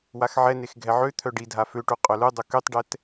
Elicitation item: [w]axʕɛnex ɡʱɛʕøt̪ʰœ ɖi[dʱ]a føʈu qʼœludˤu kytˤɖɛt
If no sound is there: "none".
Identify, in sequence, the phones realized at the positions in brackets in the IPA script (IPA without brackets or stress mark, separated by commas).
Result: w, dʱ